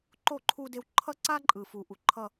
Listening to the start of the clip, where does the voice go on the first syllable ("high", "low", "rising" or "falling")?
falling